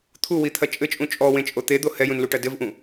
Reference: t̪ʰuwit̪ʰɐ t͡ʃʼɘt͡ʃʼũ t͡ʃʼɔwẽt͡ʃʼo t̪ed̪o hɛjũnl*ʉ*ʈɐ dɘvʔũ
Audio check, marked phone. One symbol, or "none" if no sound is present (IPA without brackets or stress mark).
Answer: u